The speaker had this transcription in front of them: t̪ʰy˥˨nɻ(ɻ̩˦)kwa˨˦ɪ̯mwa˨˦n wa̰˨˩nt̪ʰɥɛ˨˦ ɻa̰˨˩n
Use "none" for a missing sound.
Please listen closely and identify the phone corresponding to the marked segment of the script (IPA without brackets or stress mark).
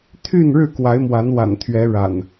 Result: ɻ̩˥˨